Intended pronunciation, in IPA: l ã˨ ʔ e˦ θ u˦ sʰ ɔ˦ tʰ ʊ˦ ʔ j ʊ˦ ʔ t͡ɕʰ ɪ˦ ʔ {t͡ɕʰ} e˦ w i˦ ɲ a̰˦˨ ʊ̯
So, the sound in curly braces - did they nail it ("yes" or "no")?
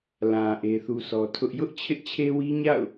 yes